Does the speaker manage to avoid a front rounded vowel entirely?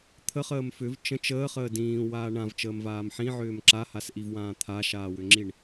no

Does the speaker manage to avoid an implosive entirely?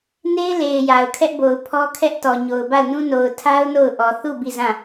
yes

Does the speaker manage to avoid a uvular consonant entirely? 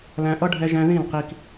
no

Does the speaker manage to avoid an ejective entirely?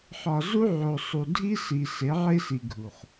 yes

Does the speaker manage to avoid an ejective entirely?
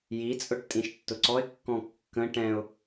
no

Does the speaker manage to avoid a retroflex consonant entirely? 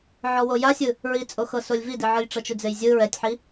no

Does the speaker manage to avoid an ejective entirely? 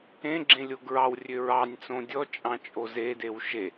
no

